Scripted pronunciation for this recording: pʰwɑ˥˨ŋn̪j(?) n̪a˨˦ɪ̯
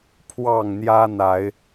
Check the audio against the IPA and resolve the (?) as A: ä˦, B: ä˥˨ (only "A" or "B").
A